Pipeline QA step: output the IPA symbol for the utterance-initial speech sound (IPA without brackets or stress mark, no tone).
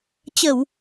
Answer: t͡ɕ